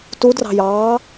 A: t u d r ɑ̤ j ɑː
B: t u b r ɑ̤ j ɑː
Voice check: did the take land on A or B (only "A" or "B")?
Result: A